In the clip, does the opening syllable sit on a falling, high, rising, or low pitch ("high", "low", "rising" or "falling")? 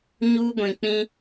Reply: high